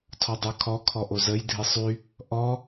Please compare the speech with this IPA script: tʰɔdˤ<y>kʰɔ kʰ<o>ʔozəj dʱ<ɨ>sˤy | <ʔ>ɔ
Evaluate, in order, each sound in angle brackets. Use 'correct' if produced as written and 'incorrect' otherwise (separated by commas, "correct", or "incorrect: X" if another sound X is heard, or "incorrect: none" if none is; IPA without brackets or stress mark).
correct, incorrect: ɔ, correct, correct